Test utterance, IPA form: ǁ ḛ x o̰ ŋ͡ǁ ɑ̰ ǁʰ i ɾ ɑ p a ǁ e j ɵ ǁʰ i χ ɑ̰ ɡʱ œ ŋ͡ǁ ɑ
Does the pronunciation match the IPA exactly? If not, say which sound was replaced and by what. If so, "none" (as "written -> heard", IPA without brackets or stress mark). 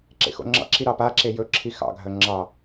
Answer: χ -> x